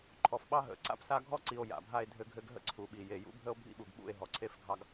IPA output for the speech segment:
ǃʰ ɔ˨ f ɓ ɑ˦ ɦ ə̰˨˦ ǀ a̰˦ p s a˦ ɡʱ ɔ˦ ǀ i˨ o̯ j a̰˨ bʱ a˦ e̯ dʱ ɘ˦ ɡʱ ɘ˦ ɡ ɦ ə̰˦ ǀʰ u˨ ɓ i˨ j e˨ j ṵ˦ bʱ ə˦ o̯ bʱ ḭ˦ ɓ u˨ ɡ ɓ ṵ˦˨ e̯ ɦ ɔ˨ ǀʰ e˦˨ f ɡʱ ɑ˦ ɡ

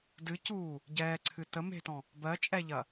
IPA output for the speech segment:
d ɨ c uː | ɟ ɛː ǀʰ ɨ t ə m e̤ t ɔ̃ | b ɜ t͡ʃʼ ɛ ʎ ɐ

